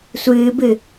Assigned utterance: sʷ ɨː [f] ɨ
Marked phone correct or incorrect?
incorrect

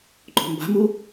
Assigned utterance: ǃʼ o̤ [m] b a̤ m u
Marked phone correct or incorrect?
correct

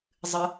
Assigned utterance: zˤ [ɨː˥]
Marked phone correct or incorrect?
incorrect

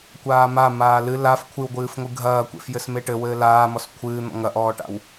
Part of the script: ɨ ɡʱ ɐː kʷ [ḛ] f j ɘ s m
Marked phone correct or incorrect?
correct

